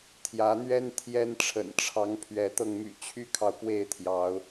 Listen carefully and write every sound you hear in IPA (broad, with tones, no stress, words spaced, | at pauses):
t̪ʰjä˨˦n̪ɥɛ˦n t̪ʰjɛ˦n ʈ͡ʂʰə̰˨˩nʈ͡ʂʰɑ˨˦ŋ pʰɥɛ˨˦t̪ɤ˧ŋ my̰˨˩t͡ɕʰy˦kʰɑ˨ʊ̯ pwe˥˨ɪ̯t̪ʰjɑ˨˦ʊ̯